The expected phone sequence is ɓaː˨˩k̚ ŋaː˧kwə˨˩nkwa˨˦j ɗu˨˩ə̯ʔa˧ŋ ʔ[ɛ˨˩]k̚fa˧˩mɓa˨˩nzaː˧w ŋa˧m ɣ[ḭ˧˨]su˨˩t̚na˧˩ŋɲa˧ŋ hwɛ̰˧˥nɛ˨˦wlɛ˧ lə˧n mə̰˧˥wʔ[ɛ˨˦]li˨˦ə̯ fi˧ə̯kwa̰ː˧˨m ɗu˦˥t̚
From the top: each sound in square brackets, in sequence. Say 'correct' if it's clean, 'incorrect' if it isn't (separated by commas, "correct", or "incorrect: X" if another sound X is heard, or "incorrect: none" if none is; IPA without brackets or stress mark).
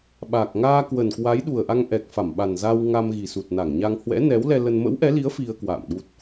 correct, incorrect: i˨˩, correct